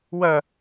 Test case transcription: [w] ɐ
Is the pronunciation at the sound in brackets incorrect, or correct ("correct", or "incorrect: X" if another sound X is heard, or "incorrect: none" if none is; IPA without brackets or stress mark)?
correct